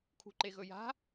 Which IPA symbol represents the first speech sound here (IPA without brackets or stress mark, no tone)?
kʰ